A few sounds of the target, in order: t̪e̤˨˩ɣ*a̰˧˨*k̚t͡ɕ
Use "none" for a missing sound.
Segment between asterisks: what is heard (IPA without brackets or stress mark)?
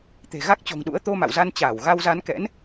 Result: a˦˥